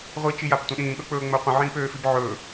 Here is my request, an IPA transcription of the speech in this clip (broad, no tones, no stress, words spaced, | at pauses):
ʁʷit͡ʃijaptʷə̃ ɗĩːɠɵk͡pɵːŋ͡mɵː qʷə̃ʕĩːpøːfib ʕɵː